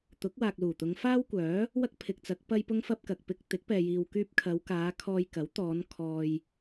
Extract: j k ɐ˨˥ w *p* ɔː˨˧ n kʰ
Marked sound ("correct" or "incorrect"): incorrect